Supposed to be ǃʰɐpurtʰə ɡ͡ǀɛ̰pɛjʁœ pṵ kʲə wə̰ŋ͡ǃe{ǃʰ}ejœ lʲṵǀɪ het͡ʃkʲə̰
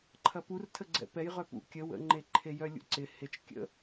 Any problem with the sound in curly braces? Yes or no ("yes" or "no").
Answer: no